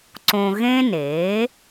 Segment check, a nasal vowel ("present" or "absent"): present